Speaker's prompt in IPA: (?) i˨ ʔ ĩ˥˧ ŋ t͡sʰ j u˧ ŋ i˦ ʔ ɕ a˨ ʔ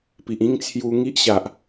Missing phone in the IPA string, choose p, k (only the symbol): p